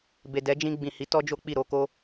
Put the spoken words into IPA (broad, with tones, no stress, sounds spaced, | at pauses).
b e˨ d ɛ˨˦ d͡ʒ ĩ˧ ɡ͡b ĩ˨ h i˨˦ t ɔ˦ d͡ʒ o˦ k͡p i˦˨ ɾ o˧ k o˦